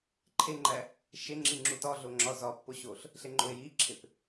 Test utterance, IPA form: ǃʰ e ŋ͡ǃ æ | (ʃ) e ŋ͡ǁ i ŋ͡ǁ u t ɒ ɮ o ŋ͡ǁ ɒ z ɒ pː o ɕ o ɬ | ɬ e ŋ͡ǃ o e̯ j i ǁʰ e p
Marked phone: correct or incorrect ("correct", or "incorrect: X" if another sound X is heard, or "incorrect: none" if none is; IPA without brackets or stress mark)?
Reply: correct